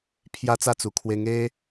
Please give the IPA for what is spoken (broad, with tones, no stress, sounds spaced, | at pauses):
pʰ j a˦ t͡s a˥˧ t͡s u˨˩ kʰ w e˧ ŋ e˦